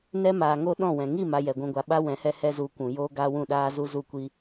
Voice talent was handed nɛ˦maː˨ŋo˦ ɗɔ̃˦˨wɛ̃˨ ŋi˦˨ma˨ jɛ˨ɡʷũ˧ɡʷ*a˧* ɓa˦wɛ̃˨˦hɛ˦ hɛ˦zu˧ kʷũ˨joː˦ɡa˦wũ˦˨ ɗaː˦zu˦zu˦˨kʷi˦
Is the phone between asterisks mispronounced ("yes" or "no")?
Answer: no